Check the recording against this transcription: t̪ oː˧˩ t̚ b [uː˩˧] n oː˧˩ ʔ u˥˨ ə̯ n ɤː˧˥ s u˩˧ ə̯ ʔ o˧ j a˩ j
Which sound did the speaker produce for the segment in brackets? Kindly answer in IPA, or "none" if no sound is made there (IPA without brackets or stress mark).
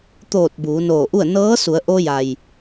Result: uː˩˧